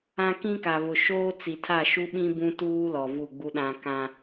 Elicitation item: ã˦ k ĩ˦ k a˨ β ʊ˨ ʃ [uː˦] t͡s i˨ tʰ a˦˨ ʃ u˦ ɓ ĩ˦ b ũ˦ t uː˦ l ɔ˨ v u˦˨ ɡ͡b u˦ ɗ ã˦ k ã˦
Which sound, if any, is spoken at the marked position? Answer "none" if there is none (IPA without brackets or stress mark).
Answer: oː˦